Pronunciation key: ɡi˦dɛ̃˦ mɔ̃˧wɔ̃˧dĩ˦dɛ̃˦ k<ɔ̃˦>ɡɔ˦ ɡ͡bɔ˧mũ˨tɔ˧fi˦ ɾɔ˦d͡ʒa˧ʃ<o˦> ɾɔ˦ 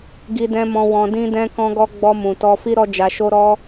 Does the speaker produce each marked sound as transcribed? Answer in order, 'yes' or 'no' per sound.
yes, yes

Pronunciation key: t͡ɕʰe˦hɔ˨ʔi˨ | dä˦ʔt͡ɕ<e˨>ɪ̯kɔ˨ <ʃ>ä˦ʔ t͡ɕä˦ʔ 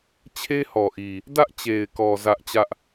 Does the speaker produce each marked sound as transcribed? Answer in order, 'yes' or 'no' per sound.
yes, no

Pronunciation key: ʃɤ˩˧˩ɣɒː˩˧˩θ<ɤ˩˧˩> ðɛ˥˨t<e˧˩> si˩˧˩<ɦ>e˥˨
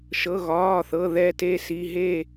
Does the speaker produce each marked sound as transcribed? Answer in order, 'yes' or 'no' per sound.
yes, no, yes

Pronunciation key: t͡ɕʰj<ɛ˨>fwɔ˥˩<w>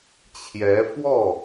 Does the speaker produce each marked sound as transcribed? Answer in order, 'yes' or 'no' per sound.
no, no

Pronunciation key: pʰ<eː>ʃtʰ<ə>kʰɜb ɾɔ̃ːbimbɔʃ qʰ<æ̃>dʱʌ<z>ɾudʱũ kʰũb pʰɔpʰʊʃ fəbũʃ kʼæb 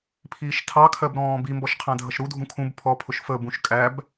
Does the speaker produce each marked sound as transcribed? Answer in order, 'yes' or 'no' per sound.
no, no, yes, no

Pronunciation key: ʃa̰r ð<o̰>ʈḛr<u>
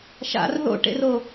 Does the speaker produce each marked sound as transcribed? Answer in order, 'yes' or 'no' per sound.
yes, no

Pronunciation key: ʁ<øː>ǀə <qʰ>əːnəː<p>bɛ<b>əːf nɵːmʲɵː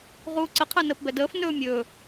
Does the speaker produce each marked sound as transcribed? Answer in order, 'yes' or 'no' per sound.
no, yes, yes, no

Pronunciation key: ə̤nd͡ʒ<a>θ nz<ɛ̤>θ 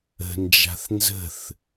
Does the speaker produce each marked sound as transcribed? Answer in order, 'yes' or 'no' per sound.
no, no

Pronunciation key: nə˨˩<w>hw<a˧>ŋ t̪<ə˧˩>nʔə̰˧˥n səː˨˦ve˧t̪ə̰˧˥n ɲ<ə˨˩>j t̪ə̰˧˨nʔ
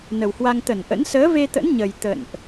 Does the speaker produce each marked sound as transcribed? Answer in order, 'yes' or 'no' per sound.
yes, yes, yes, yes

